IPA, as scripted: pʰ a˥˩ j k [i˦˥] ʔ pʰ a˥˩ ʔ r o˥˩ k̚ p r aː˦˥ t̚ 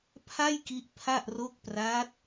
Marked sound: correct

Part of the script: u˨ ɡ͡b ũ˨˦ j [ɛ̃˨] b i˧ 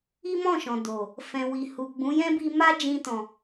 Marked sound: incorrect: ɛ̃˦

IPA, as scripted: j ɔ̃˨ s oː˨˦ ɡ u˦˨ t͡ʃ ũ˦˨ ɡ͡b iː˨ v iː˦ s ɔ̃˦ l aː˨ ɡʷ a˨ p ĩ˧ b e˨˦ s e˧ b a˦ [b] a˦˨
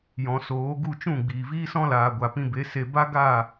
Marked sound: incorrect: ɡ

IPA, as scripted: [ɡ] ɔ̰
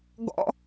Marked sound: correct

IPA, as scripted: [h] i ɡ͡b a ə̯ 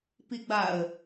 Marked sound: incorrect: p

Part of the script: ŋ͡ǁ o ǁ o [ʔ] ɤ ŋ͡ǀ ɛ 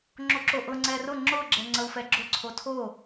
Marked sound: correct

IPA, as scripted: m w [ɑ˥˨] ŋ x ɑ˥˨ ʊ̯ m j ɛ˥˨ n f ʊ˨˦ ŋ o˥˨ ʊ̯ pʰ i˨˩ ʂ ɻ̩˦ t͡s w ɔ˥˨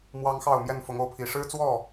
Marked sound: incorrect: ɑ˦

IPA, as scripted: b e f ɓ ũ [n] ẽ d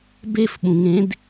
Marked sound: incorrect: ŋ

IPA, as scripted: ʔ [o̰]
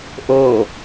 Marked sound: incorrect: o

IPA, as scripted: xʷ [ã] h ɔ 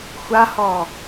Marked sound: incorrect: a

